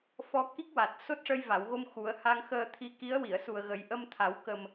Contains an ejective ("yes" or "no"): no